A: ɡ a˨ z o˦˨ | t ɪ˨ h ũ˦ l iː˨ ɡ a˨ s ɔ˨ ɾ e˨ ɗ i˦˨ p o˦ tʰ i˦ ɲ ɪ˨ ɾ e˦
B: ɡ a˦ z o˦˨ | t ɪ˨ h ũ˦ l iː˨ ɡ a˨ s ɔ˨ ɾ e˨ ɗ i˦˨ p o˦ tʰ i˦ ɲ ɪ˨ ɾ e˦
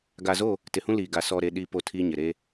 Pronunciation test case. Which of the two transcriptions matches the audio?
A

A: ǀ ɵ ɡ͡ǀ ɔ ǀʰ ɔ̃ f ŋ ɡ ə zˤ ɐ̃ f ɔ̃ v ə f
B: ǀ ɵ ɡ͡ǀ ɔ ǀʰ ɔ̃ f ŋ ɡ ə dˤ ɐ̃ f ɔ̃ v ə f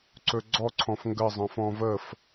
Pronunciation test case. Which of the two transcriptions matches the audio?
A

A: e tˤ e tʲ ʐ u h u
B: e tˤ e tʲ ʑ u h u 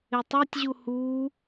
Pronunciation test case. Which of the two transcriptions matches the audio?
B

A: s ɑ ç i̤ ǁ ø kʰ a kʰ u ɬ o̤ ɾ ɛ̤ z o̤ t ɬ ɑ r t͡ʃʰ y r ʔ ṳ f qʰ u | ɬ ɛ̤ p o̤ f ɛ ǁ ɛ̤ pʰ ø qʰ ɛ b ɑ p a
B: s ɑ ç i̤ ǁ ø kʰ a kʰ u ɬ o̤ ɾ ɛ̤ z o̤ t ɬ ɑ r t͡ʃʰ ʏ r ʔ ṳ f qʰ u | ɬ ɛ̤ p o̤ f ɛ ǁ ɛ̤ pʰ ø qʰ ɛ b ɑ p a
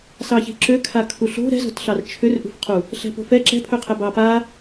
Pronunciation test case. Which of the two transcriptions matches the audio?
B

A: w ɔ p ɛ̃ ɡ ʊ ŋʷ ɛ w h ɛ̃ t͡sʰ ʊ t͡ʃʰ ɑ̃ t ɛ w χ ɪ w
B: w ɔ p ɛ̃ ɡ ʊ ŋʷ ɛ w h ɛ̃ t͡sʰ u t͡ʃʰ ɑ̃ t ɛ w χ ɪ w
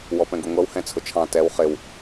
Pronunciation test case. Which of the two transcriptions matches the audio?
A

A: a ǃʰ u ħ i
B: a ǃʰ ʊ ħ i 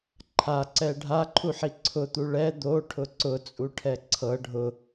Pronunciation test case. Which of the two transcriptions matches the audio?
A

